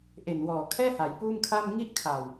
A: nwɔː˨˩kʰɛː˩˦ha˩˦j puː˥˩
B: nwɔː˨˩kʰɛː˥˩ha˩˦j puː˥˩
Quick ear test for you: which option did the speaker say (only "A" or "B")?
B